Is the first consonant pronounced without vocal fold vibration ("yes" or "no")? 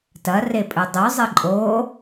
yes